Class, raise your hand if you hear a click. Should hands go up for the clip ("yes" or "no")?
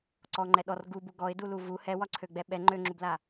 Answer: yes